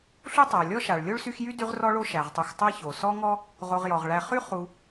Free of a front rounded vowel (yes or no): no